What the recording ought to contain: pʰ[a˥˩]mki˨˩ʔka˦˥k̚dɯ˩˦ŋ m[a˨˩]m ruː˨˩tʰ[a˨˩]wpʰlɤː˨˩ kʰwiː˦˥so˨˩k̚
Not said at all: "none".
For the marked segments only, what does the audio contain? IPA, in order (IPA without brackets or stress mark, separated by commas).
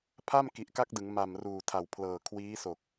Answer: a˥˩, a˨˩, a˨˩